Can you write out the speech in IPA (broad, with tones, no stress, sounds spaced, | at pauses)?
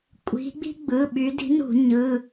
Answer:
kʷʼ i̤˨˦ ɡ͡b i̤˥ ɡ͡b ɯ˩˧˩ ɓ y˨˦ d i̤˨˦ n ṳ˧˩˧ ɲ ɯ˩˧˩